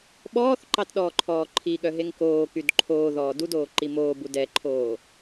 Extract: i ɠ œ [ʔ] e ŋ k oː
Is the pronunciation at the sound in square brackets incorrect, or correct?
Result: incorrect